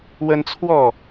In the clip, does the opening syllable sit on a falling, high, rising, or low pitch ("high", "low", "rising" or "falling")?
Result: high